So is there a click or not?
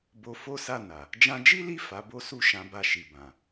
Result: no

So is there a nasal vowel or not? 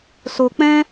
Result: yes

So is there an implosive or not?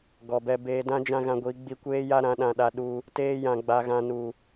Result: yes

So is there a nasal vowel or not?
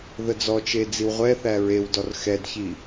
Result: no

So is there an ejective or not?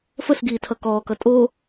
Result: yes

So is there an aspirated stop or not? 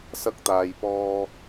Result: no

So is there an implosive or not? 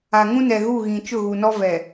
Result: no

